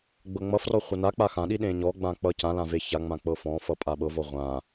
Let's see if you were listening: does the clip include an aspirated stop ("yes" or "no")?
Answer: no